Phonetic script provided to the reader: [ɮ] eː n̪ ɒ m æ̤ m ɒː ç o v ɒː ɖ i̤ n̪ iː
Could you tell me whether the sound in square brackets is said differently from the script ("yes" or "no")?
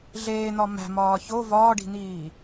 no